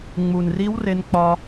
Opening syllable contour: low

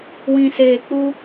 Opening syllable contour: low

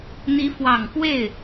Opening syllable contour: rising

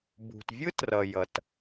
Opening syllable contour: low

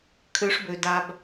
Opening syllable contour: rising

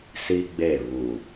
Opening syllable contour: high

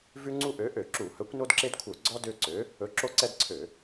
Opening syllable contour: high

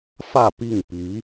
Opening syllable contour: falling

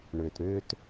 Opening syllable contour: low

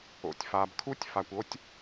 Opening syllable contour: low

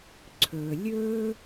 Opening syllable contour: low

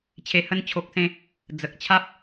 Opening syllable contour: low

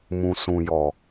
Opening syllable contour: low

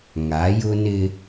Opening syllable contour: rising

